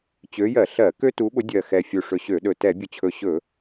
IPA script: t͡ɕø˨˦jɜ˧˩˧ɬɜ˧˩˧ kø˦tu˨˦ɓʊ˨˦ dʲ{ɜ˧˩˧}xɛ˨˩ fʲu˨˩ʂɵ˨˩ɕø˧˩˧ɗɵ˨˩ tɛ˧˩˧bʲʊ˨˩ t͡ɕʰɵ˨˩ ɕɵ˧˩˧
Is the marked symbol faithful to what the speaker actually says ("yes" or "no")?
no